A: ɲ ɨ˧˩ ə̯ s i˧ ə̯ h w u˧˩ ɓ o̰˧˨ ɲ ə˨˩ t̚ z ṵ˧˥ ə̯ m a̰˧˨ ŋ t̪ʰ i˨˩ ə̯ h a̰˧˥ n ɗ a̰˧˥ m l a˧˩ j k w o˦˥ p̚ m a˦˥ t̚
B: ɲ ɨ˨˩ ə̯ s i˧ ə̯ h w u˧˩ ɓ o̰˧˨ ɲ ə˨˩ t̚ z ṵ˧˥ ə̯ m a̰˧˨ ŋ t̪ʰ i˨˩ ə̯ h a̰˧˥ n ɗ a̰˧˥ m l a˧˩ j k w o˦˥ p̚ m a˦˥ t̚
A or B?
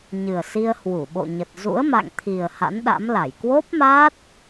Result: B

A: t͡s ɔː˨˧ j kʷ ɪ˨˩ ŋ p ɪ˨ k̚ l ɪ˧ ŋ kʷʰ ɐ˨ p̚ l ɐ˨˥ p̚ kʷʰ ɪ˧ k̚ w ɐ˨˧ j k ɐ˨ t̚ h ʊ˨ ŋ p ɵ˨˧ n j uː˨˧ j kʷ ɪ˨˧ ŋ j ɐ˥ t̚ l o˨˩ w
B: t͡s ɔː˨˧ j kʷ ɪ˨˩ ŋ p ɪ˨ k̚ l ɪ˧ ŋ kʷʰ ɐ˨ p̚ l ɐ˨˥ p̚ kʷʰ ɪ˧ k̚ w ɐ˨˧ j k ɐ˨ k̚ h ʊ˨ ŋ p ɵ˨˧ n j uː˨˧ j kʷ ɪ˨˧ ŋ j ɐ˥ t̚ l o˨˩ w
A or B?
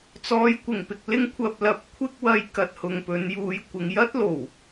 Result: A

